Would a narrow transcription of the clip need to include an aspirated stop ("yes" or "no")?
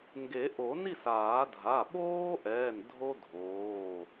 no